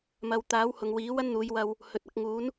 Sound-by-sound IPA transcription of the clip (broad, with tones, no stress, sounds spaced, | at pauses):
m ɐ˨ w t̪ aː˨˥ w h ʊ˨ ŋ w iː˨˥ w ɐ˥ n n̪ uː˨˧ j w ɐ˧ w | h ɵ˨ t̚ ɐ˨˥ k̚ ŋ uː˨˥ n